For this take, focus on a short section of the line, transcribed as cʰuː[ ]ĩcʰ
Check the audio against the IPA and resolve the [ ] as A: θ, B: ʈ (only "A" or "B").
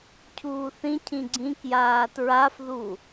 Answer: A